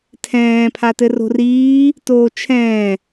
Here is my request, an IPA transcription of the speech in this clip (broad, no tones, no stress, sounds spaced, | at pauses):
tʰ ɛ̃ː pʰ a t ɘ r o̤ r iː | t oː t͡ʃʰ ɛ̃ː